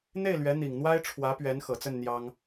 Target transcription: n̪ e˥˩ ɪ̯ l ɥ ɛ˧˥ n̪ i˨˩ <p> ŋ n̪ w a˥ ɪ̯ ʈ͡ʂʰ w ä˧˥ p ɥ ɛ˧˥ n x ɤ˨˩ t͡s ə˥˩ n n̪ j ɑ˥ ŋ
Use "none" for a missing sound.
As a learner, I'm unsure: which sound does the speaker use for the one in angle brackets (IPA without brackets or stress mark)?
none